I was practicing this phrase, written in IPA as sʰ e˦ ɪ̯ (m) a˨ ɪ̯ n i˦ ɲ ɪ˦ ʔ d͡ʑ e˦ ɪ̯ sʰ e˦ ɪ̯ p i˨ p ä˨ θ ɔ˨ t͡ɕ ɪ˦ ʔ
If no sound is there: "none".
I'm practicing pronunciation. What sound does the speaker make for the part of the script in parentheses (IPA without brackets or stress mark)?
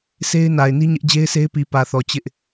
n